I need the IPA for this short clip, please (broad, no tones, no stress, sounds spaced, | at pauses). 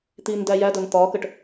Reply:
t̪ i n d æ j æ d ʌ n t̪ ɒ k ə ʈ